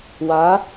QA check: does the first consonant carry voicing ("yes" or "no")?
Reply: yes